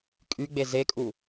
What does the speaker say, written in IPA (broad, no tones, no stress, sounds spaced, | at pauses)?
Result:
kʼ y ɡ͡b e z e kʼ u